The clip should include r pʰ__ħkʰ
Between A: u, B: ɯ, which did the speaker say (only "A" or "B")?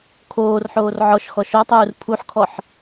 A